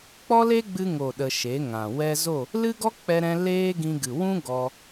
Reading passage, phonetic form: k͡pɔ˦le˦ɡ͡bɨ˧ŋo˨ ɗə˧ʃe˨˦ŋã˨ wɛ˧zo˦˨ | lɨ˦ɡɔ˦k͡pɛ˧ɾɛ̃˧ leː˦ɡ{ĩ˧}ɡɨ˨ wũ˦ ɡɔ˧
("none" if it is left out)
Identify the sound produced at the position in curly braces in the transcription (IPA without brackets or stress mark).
ĩ˧